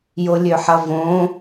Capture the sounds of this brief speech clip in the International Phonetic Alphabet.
jolʲøħɐvõ

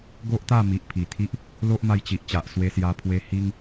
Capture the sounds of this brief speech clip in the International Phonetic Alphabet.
ɡo˦ʔt̪a˥˧ mi˨ʔ pʰi˨˩t̪ʰi˦ʔ | lo˦ʔma˧jt͡ɕi˨ʔt͡ɕa˨ʔ swe˧sja˧pʰwe˧ hi˦ŋ

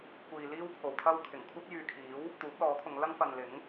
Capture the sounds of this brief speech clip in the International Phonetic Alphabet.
kʷiː˨ liː˥wpʰo˨w t̪ʰɐ˥w kʰɪ˨˩ŋkʷʰɐ˥t̚ jyː˨kʰiː˨˥w | t̪uː˨˥p̚lɔː˨˥kʰʊ˨˧ŋ lɐ˥ŋfɐ˨nlɪ˨˥ŋ

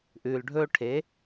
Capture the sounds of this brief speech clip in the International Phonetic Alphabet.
ʔʉː˩lɖʱɵː˧ ʈʰe˩˧

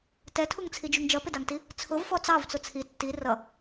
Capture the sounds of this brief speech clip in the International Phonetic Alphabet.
tɛtʰuŋt͡sʰid͡ʒuŋ d͡ʒʌpɪdɑŋti | t͡sʰʊvfɔ t͡sɑvt͡sʊ t͡sʰi tːi rʌ

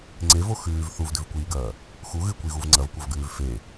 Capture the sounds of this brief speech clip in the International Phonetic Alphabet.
ŋ͡ǀevo xʉːv θuvdʉvkʷiːɡɐː | xu ɣɨkʷiɣuv ŋ͡ǀɐvkʷɐvɡʉːv fe

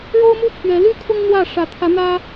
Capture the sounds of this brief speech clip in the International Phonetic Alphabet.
ɻo˥ʊ̯mu˥ pʰɥɛ˧˥ly˥kʰʊ˥ŋ n̪wä˥˩ ʂä˧˥t̪ʰä˧˥ n̪ä˥

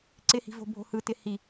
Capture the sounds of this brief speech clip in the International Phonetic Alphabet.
ǀɪhi̤vo̤ bʱo̤hɯtɪ hi

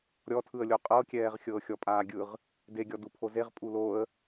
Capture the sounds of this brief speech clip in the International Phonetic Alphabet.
ɾʲɔtʰɯə̯lʲo qʼɤkʲɛːʁ xʲɤːxʲɔpʼaːɡʲɯʁ | deɡʲɔ dupʰozeʁ pʼuloə̯

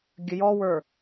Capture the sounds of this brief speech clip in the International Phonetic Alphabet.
ɡʲəjɔwə˞

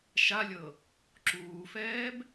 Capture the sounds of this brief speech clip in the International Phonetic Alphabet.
ʃalʲɤ | ǁuːfɛːb

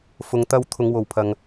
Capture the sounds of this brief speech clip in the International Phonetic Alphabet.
fʊ˨˧ŋt̪ɐ˧w t̪ʰʊ˨˧ŋwo˨wpʰɐ˨ŋ

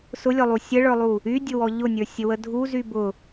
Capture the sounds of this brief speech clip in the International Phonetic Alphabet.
sʊlʲɔlˠu sʲəɭə˞lˠu | ydʲʊwɔ ʎʊnʲə˞sʲəwə dʱuzy bʊ

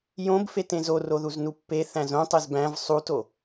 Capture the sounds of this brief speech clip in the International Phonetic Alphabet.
jõbfet ẽzo roðuznupːe θæ̃zõtˤez bæ̃v sˤuto

